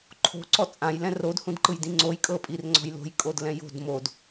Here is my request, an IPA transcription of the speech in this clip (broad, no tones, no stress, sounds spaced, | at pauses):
ǃʰ o̤ ǀ ɔ t͡sʼ ã j l ɛ̃ r o d h ũ d ǃ ɯ j d ĩ ŋ͡ǀ o j kʼ ɤ pʼ i r ŋ͡ǀ ɔ̤ j l o̤ j kʼ o d l ɛ̃ j o̤ d m o d